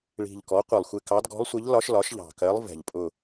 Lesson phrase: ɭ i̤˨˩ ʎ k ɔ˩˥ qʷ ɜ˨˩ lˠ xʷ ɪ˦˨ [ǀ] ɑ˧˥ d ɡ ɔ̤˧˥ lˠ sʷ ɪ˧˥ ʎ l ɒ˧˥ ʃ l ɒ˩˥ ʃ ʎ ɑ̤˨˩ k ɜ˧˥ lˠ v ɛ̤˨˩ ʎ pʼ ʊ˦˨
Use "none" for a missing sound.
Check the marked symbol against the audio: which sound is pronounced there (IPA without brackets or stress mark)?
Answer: k